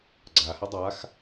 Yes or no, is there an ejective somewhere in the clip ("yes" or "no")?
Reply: no